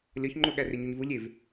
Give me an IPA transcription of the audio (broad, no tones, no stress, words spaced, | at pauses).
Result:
lʲɒçŋ͡ǃoɠæ reɲuɲvu lʲev